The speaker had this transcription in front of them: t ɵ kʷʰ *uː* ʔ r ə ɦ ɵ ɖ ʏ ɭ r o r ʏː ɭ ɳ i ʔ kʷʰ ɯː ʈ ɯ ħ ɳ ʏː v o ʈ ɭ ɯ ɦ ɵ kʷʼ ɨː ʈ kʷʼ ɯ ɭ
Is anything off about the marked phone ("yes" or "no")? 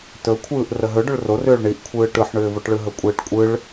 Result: yes